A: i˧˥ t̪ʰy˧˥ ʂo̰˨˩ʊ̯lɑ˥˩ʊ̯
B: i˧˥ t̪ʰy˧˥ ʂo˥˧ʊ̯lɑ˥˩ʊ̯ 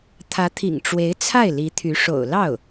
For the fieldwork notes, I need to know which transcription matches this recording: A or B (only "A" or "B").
A